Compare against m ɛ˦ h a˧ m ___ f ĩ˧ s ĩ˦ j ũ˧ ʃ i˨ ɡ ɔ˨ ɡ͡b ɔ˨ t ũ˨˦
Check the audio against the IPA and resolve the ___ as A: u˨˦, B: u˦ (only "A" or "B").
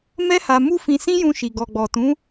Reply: B